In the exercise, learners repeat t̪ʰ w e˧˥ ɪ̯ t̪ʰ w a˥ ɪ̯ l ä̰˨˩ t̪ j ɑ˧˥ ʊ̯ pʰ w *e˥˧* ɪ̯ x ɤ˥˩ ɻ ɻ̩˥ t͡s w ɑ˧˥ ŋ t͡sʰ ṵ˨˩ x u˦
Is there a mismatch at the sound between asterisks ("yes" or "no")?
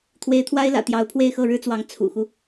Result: no